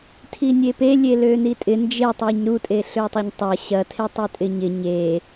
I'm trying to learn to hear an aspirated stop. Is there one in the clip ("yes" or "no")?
yes